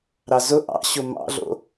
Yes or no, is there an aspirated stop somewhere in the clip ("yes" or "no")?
no